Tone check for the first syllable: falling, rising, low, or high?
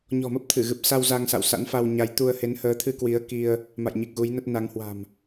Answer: low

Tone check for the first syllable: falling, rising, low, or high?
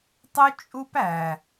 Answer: high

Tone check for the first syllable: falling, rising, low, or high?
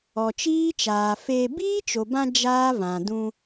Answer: low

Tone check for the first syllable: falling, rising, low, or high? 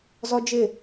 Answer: high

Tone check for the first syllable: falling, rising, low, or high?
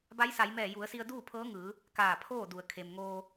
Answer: rising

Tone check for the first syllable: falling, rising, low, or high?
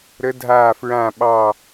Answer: rising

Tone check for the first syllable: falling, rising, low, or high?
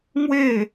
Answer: falling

